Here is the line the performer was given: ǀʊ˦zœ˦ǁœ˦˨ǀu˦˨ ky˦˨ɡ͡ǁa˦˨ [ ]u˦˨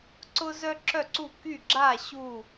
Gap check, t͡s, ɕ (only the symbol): ɕ